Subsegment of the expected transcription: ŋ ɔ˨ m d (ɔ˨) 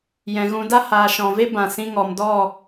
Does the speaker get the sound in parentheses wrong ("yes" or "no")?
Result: yes